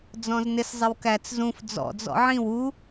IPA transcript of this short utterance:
d͡z ɔ̃ z n ɪ s zˤ ɪ w k æ t͡s z ũ f d͡z ɔ̰ d͡z ɔ̰ ʕ ĩ w u

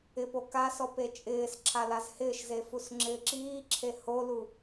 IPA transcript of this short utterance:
ɪ p o k a s ɔ p e t͡ʃʼ ɪː s ǁʰ a l a z h ɪː ʃ z e f u s ŋ͡ǁ ɪː ǁ iː ǁʰ e h o l u

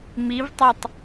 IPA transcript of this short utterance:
m i v tˤ a tˤ

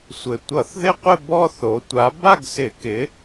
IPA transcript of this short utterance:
sʷ ɘ˩ tʷ ʌ˧˩˧ θ ð ɪ˥˧ qʷ ɪ˥˧ b ɔ˥˧ θ o˩˧ tʷ a˨˥ b a˥˧ ɡ s ɪ˧˩˧ k ɪ˨˥

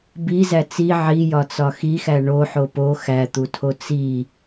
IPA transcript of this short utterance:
b i z æ t͡s i ʕ i j ɒ t͡s ɒ x i x æ ɳ o ħ o p o x æ t̪ u tʰ o t͡s i

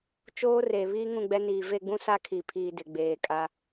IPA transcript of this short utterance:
t͡ʃ oː˦ r e˨ β iː˦ ŋ ũ˦˨ ɡ͡b ɛ˦ n iː˨ v e˦˨ ɡ͡b ũ˦ s a˦ kʰ i˨ pʰ iː˨ d ɪ˨ ɡ͡b eː˨ kʼ a˦

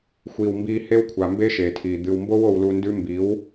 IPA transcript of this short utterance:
xʷ iː˨ w m b iː˧ h e˦ w kʷʰ a˨ m b e˦ ʃ eː˨ tʰ iː˨ d̪ ɨ˨ w m b o˦ w o˧ w l u˧ n d ʉ˦ m b i˨˦ w

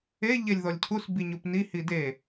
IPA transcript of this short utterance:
e ʎ e lʲ ð ɔ lʲ cʰ u s b i ɲ u p n i h i d e

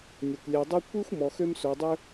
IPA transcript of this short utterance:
nʲ ʌ˩ kʷ lʲ ɛ˨ dˤ ʌ˥ kʷ i˥ xʷ m ɔ˨ x ø˦ m s o˨ dˤ ø˦

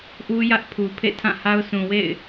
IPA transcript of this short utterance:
ʔ u˦ j ä˦ ʔ pʰ u˨ pʰ ḛ˦˨ tʰ ã˦˨ h a˦ ʊ̯ sʰ ũ˨ w ḛ˦˨ ɪ̯

